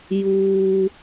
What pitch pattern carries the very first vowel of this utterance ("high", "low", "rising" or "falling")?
low